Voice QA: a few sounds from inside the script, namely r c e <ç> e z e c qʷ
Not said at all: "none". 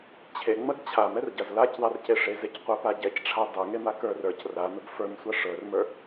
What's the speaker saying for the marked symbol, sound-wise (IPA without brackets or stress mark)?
ʂ